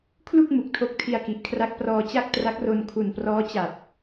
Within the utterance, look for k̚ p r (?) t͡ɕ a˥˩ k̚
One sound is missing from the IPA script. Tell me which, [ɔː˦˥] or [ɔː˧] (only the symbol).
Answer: ɔː˧